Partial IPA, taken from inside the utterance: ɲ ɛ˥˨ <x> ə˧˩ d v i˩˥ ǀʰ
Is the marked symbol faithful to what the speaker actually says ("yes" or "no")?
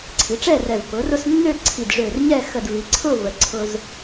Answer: yes